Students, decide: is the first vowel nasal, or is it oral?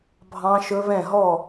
nasal